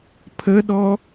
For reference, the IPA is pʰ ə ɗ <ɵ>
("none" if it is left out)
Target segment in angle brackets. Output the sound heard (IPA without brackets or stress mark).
ɔ